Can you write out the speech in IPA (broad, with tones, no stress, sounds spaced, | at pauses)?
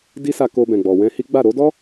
d i˦ s a˧ k o˧ b ɛ̃˨ ɡ͡b ɔ˨ w ɛ̃˧ h i˦ ɡ͡b a˦˨ ɾ o˨˦ d ɔ˦